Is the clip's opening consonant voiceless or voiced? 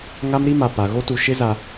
voiced